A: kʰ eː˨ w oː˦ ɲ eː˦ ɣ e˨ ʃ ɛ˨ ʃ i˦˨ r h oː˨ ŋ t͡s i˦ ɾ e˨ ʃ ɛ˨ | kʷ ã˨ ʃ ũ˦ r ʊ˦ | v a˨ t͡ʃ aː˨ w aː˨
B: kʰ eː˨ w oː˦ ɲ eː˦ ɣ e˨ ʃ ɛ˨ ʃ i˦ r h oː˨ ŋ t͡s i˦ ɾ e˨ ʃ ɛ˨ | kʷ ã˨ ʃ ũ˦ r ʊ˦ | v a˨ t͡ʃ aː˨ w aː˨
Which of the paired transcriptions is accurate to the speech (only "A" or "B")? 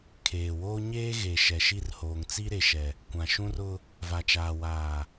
A